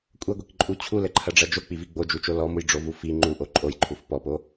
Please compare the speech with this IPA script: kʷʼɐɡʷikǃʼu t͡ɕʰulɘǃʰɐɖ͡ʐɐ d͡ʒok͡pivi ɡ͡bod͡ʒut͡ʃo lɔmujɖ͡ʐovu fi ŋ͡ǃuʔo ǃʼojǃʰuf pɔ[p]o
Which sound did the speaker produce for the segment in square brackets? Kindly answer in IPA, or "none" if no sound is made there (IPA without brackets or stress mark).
p